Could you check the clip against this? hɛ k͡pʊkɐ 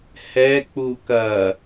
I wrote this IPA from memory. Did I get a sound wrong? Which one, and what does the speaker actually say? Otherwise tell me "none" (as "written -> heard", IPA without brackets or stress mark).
ʊ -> u